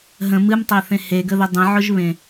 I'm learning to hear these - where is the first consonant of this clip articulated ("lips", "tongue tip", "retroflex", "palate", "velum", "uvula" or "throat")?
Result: throat